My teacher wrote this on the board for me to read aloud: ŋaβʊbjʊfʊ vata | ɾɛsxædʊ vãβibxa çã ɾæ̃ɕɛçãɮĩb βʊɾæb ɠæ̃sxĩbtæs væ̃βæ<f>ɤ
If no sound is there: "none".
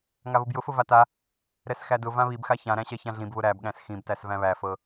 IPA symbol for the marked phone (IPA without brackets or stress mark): f